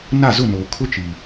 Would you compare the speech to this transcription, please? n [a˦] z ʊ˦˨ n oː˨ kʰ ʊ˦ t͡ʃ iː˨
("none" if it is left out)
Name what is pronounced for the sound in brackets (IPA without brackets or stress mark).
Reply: a˦˨